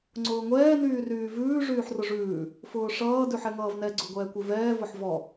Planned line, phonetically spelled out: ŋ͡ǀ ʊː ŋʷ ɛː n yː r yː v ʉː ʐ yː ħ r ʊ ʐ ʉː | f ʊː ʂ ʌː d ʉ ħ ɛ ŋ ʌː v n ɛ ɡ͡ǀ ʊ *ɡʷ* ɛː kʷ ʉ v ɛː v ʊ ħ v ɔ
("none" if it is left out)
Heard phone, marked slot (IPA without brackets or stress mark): ɡʷ